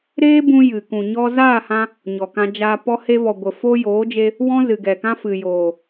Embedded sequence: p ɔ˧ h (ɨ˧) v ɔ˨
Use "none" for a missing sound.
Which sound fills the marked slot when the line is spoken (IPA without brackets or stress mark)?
e˧